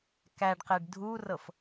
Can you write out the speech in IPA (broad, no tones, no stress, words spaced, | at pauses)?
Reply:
kæɖqeɖ dʱurɤf